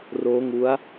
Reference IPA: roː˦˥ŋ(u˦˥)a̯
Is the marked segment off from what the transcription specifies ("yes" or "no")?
no